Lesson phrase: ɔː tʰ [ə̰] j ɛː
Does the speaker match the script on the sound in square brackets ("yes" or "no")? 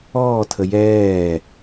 no